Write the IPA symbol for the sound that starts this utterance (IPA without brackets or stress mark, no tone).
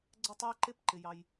ɡ͡ǀ